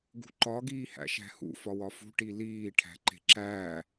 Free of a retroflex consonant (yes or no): no